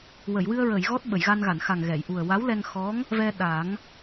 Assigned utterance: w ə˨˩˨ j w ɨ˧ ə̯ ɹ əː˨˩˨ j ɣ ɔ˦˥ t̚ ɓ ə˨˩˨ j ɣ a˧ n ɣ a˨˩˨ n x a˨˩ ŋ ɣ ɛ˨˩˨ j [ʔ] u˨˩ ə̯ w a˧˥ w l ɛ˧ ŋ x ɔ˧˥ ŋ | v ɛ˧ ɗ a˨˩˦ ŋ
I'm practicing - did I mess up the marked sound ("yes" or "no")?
no